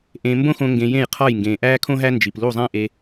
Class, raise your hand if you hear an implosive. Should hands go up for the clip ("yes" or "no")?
no